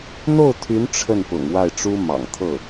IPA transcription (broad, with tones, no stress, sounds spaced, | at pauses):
n̪ o˥˩ ʊ̯ t̪ʰ y˧˥ n ʈ͡ʂʰ ə˥˩ n p ʊ̰˨˩ ŋ w a˥˩ ɪ̯ ʈ͡ʂ u˥ m ɑ̰˨˩ ŋ t̪ʰ ɤ˥˩